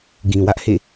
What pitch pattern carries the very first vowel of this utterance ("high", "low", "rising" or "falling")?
low